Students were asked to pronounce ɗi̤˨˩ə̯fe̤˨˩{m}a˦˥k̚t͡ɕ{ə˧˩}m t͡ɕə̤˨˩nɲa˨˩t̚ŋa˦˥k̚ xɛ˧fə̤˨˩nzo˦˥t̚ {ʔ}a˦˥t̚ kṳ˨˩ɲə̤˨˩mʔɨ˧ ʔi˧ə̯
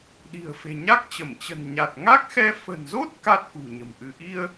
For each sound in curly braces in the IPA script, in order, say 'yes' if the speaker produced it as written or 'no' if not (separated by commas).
no, yes, no